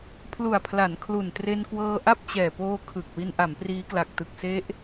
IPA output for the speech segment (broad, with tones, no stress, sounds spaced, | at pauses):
pʰ l u˨˩ a̯ pʰ l a˩˦ n kʰ l u˨˩ n t r e˧ n k w ɤː˧ ʔ a˥˩ p̚ t͡ɕ ɛː˨˩ p oː˧ kʰ ɯ˨˩ k̚ w i˧ n ʔ a˩˦ m p r iː˦˥ k l a˨˩ k̚ t ɯ˨˩ k̚ s e˦˥ ʔ